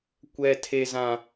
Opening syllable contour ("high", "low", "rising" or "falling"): high